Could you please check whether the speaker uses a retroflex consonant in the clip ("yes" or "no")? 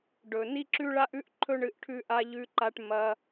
yes